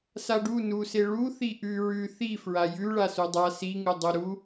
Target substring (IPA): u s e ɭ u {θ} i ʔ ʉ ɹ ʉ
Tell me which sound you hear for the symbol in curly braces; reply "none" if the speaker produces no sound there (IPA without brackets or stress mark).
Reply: θ